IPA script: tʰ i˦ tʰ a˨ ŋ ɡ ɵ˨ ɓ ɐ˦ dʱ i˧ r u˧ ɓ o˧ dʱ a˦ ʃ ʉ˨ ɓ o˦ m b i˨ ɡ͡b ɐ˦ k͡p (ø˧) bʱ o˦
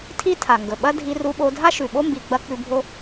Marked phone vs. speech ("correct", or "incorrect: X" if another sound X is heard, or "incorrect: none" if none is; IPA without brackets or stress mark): incorrect: ʉ˧